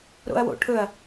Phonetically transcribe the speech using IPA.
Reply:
ɾ o̰ ɐ̯ w o̰ ʈʰ ɵ ɐ̯

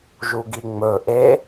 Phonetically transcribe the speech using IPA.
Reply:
ʒ u ɡ i ŋ͡m ɵ ʔ e

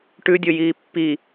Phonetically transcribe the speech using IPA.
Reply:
ʈ ʉ dʲ o j iː pː i

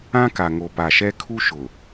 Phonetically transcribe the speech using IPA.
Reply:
ã˦ k a˨ ŋ o˨ p a˨ ʃ ɛ˦ kʰ u˦ ʃ ʊ˨

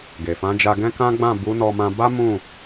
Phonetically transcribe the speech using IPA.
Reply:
ɡ e˨ f ã˨˦ d͡ʒ a˧ ɡ ɛ̃˦ k ã˦ ɡ͡b ã˦˨ b u˨˦ n ɔ˧ m ã˧ b a˦ m ũ˦˨

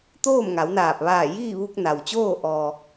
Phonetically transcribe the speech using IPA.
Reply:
t̪ oː˥˨ m ŋ a˩˧ w n aː˧˩ p̚ ʋ aː˧˩ j iː˥˨ ʋ u˧ k̚ n a˩ w t͡ɕ oː˥˨ ʔ ɔː˧

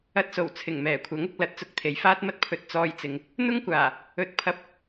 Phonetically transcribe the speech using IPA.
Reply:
ɐ˧ t̚ s o˨˩ w t͡sʰ ɪ˨˩ ŋ m ɛː˨˩ kʷʰ ɐ˨˥ ŋ ʊ˧ k̚ l ɐ˨˥ t̚ t͡s ʊ˨ k̚ t̪ʰ e˨˧ j f aː˥ t̚ m ɐ˥ t̚ pʰ ɵ˧ t̚ t͡s ɔː˧ j t͡s ɪ˨˧ ŋ | n̪ ʊ˥ ŋ kʷ aː˨˩ | ɵ˧ t̚ pʰ ɐ˧ p̚

